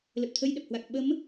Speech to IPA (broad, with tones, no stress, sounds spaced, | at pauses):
l ə˨˩ p̚ t̪ʰ ə˧ j ɗ ə˨˩ p̚ h w a˨˩ k̚ ɓ ə˨˦ m